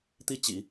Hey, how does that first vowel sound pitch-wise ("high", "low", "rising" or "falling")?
falling